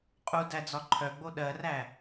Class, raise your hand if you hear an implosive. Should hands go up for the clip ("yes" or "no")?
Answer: yes